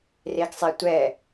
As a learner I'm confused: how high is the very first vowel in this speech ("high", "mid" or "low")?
mid